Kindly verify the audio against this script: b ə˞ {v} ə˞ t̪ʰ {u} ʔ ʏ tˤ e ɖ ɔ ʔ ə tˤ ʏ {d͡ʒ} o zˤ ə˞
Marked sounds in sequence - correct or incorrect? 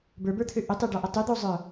incorrect: b, incorrect: ø, incorrect: d̪

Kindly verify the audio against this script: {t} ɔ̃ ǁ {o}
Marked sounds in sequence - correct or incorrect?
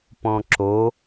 incorrect: p, correct

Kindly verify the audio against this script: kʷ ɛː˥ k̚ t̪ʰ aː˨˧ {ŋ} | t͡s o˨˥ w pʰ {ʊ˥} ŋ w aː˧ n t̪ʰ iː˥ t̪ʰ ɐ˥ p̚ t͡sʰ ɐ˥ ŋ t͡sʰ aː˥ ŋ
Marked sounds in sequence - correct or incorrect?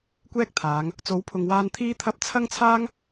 correct, incorrect: ʊ˨

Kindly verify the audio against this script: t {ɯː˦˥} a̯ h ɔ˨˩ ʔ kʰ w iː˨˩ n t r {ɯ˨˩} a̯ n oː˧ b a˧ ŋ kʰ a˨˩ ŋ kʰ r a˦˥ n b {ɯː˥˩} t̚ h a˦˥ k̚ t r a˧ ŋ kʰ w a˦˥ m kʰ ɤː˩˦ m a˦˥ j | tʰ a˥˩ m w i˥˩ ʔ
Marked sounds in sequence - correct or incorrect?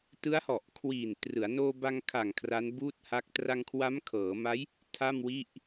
incorrect: ɯ˦˥, incorrect: ɯ˩˦, incorrect: uː˥˩

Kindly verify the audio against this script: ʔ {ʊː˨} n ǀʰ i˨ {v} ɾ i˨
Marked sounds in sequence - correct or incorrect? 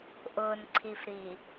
correct, incorrect: f

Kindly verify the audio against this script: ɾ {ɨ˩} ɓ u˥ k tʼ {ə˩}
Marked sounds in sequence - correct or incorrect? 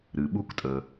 correct, correct

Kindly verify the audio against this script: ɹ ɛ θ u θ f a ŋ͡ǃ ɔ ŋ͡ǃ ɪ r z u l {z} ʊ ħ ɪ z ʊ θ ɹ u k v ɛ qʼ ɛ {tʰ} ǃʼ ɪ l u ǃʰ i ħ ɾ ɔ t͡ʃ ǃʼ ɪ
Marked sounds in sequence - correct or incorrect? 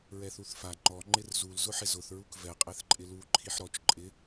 correct, incorrect: θ

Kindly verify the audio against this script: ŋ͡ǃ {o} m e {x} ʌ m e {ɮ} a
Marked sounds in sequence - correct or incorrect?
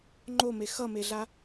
correct, correct, correct

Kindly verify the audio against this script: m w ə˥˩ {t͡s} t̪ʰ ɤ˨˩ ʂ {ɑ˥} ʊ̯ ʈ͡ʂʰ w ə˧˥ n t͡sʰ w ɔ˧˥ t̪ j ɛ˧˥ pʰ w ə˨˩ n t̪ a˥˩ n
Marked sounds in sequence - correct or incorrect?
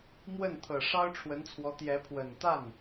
incorrect: n, correct

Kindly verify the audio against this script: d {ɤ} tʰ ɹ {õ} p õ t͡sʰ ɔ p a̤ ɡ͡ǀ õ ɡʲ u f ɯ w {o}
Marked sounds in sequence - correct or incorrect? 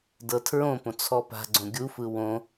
correct, correct, incorrect: õ

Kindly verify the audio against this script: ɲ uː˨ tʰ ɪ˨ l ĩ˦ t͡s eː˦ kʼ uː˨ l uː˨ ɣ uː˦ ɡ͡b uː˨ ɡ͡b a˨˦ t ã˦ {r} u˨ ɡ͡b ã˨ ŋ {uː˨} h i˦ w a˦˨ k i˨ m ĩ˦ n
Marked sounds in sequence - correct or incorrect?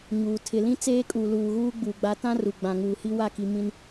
correct, correct

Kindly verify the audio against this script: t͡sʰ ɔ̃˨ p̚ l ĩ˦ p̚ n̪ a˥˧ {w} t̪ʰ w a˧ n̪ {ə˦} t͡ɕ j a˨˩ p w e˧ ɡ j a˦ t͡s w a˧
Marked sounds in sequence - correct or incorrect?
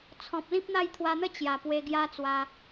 incorrect: j, correct

